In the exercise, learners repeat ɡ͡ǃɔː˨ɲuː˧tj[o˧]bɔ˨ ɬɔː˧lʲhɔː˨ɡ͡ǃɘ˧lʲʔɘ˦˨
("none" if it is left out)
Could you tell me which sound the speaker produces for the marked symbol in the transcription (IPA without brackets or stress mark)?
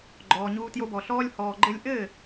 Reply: o˧